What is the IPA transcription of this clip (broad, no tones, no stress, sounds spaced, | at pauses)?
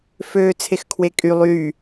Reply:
f øː t͡sʰ e x kʰ w e kʼ y lˠ yː